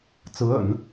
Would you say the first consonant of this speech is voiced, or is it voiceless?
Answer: voiceless